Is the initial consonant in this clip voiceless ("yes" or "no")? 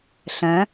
yes